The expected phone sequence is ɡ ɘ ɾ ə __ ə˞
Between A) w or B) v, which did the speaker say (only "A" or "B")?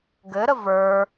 B